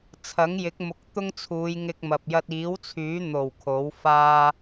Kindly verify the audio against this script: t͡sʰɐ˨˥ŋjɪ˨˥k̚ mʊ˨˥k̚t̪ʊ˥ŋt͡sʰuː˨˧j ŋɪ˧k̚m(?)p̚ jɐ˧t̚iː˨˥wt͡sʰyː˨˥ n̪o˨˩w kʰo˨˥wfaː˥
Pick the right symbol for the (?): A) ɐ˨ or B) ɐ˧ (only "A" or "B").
A